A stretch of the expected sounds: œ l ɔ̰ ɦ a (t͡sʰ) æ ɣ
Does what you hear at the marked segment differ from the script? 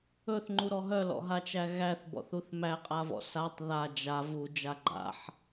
yes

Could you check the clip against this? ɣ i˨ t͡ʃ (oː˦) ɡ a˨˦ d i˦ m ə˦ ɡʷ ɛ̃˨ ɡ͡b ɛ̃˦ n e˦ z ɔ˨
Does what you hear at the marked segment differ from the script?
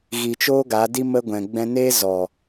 no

